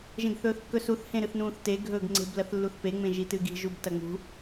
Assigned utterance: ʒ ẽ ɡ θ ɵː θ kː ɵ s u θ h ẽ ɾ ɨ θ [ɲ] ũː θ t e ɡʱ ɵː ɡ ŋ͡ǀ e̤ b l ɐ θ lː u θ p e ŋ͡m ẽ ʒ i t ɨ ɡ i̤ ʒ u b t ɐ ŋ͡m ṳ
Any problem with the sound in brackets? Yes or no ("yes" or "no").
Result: yes